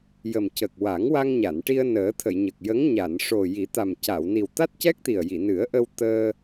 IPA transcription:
j ə˨˩ m c ə˨˩ k̚ w a˨˩˦ ŋ w a˧ ŋ ɲ a˨˩˨ n ʈ i˧ ə̯ n əː˨˩˦ t̪ʰ ə˨˩˨ j ɲ ə˨˩ k̚ j ə˧˥ ŋ ɲ a˨˩˨ n ʂ o˨˩ j i˨˩˦ t̪ a˨˩ m c a˨˩˨ w n i˨˩ w t̪ a˦˥ t̚ c ɛ˦˥ k̚ t̪ i˨˩ ə̯ j i˨˩˨ n ɨ˨˩˦ ə̯ ʔ ə˧ w t̪ əː˧

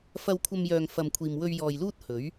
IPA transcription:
f ɐ˧ w kʷʰ ɐ˧ m j œː˨ ŋ f ɐ˨ m kʷʰ iː˨ m w ɵ˧ ɥ j ɔː˨ j l uː˥ t̚ h ɵ˨˥ ɥ

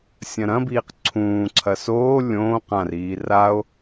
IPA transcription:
sʲ ɐ̃ ɾ ɐ̃ b iː q ǀʰ ũː ǀʰ ɐ s oː lʲ õː q ã r iː r a o̯

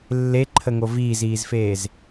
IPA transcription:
lː e ǃʰ ə ŋ o v iː z iː z f eː z

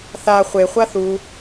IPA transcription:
θ a χʷ e χʷ a θ u

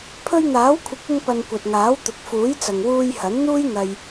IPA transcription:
pʰ ɵ˧ ɥ n̪ aː˨˥ w kʷʰ ɪ˨˥ k̚ ɪ˧ ŋ p ɐ˨ n kʷ ɐ˨ t̚ ŋ aː˨˥ w t̪ ʊ˨ k̚ f uː˨˥ j t͡s ɐ˨ ŋ w uː˧ j h ɐ˨˥ n n̪ uː˥ j n̪ ɐ˧ j

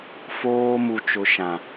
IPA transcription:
f oː˦ m u˦ t͡ʃ ʊ˦ ʃ ã˦

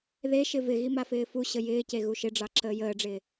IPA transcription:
ð e ʃ ɪ v ɪ ɣ i m a f ɪː f u ɕ ə j ɪː c e ɣ u ʃ ɪ ɖ͡ʐ ɑ ǁ əː j əː ɖ͡ʐ ɪː

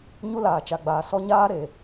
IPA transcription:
ɲ u˦ l aː˨ t͡ʃ a˨ ɡ͡b aː˨ s ɔ˦ ɲ aː˦ ɾ e˨

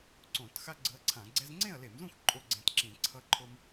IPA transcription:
ǀ õ˧˩˧ t x a˦ ɡ͡ǀ ɯ˨˦ ɐ̯ ǀʰ ã˧˩˧ ɡ͡ǀ ɛ˦ z ŋ͡ǀ ẽ˥˨ ɐ̯ l e˧˩˧ m z ũ˥˨ x ǃʼ o˦ ɡ͡ǀ ẽ˨˦ t ǁ ĩ˧˩˧ ǀʰ ʌ˦ ǃʰ o˦ m

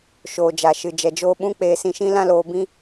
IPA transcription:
ʃ oː˨ d͡ʒ a˨ ʃ ɨ˨ d͡ʒ ɛ˨ d͡ʒ oː˧ ɓ ũ˦ k͡p eː˧ s ĩ˧ ʃ ĩ˦ l ã˦ l oː˧ b ĩ˦

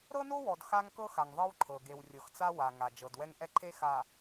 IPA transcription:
ɾ ɤ˦ n o˦ w ɔ˨ d x a˦ ŋ k ɤ˦ x a˨ ŋ ðˤ ɤ˦ w ǃʰ ɤ˨ ɡ e˨ w rʲ ɤ˨ x t͡s a˦ w a˨ ŋ a˨ d͡ʒ ɤ˨ d w ɛ˦ ŋ ʔ ɛ˦ ǃʰ e˦ x a˨

